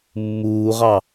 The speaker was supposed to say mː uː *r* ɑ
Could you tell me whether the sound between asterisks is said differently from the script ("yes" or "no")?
yes